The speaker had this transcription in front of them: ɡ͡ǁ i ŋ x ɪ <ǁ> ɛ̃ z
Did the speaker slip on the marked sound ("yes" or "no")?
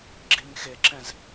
no